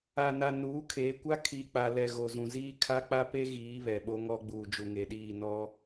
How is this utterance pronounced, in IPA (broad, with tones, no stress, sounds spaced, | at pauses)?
a˨ n a˨ n uː˨˦ kʰ e˨˦ kʷ a˦ kʰ iː˨ k͡p a˨ l ɛ˨ ɣ o˨ z ũ˨ z iː˦ kʰ a˦ k͡p a˦ p e˦ ɣ iː˨˦ β ɛ˨ ɓ o˦ ŋ ɔ˦ ɡ͡b uː˨ d͡ʒ u˨ ŋ e˨ ɗ iː˦˨ n ɔ˦